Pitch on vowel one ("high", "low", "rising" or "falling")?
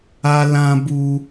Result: high